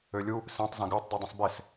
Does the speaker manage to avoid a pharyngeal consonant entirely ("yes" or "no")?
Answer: yes